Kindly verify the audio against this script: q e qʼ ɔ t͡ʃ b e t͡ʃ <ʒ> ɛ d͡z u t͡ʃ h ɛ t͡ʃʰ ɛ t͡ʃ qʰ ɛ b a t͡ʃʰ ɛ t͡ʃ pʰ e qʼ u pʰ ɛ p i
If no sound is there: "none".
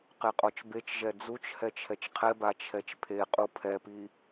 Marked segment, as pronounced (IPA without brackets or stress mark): ʒ